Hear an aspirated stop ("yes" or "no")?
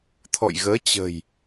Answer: yes